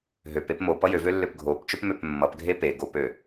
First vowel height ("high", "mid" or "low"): mid